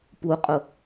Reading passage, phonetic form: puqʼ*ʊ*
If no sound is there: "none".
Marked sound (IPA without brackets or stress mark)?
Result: ʊ